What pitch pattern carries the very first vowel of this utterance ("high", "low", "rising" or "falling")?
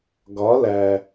rising